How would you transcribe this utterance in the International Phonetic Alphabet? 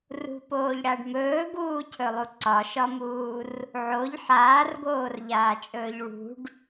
r ṳ p oː ʎ ɽ a ɖ m ɵː ɡ uː cʰ ɵ lˠ u ǀ ɒ ʃ ɒ m uː r | ʕ o ʎ ħ aː r ɡ oː r ʎ aː t͡ʃʼ ɵː ʎ ɭ ṳ ɖ

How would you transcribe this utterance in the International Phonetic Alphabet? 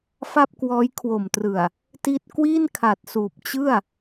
f a˥˩ p̚ k w ɔː˦˥ j kʰ w o˨˩ m t r ɯ˨˩ a̯ | t i˥˩ t̚ k w i˥˩ n kʰ a˨˩ t̚ s uː˨˩ p̚ t͡ɕ ɯ˥˩ a̯

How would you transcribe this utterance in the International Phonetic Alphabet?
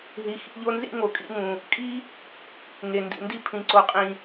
ɦ i˨ x ḭ˧ ʎ o˧ n z ḭ˦ ŋ o˨ kʼ ḭ˧ ŋ ũ˨ | kʼ i˦ | ŋ e˨ n d ḭ˨ n d i˧ pʰ ĩ˨ ǀ o˨ qʼ ĩ˨

